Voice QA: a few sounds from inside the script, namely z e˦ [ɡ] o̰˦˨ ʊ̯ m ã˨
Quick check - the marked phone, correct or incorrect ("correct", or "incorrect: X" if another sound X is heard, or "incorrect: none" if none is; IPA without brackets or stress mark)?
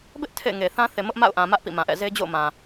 incorrect: d͡ʑ